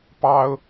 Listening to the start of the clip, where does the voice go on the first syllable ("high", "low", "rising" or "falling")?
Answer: high